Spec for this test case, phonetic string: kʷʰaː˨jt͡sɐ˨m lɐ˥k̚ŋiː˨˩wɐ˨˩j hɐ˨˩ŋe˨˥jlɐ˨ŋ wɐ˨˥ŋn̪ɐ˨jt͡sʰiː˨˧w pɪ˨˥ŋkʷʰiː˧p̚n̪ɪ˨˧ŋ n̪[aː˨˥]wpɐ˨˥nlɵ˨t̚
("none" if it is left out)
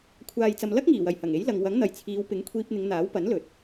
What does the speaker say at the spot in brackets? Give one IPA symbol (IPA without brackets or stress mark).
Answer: aː˨˥